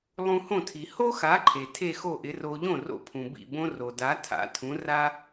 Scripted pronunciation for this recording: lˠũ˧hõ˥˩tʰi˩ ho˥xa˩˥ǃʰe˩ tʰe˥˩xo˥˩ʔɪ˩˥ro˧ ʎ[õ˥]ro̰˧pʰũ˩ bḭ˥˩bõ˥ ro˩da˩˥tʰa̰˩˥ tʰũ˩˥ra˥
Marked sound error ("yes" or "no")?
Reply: yes